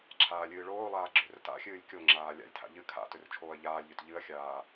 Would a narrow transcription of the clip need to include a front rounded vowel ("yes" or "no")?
yes